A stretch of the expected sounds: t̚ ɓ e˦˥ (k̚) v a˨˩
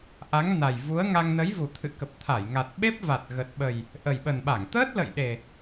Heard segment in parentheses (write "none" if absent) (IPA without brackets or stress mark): p̚